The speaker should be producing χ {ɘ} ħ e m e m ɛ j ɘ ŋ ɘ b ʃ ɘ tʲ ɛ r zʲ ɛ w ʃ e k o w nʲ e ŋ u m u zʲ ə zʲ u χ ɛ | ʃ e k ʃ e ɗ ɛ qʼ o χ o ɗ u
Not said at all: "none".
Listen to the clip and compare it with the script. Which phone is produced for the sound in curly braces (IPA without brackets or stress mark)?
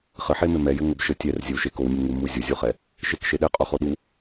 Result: ɘ